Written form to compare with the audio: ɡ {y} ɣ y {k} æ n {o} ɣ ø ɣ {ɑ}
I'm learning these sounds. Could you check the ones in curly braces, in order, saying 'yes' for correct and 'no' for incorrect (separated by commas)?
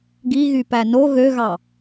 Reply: no, no, yes, yes